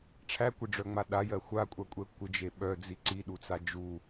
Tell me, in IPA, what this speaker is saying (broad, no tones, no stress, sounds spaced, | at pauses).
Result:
ʈ͡ʂʰ æ kʷ ɪ ɖ͡ʐ œ ŋ͡m a ɗ a j ɜ xʷ a kʷʼ a kʷʼ ɛ kʷ ɪ d͡ʒ e ɓ œ d͡z i ǀ i ɗ u t͡s a d͡ʒ u